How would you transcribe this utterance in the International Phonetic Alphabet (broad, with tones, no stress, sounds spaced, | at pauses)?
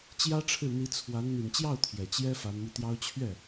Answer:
t͡ɕ j ä˥ ʈ͡ʂʰ ɻ̩˥˩ n̪ i˧˥ t͡sʰ w a˧˥ n n̪ i˨˩ n t͡ɕ j ɑ˥˩ ʊ̯ t̪ʰ j ɛ˨˩ t͡ɕ j ɛ˥ f a˧˥ n m i˧ t̪ j ɑ˥ ʊ̯ t͡ɕʰ ɥ ɛ˥˩